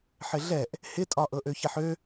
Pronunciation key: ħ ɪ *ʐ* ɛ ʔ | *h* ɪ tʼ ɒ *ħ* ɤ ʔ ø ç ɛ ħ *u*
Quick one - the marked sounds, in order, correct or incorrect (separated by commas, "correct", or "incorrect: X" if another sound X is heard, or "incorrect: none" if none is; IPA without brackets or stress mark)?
incorrect: ɮ, correct, incorrect: ʔ, incorrect: ø